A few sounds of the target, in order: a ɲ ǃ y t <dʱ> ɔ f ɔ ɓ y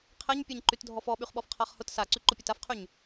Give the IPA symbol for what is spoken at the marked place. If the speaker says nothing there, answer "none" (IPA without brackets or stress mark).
dʱ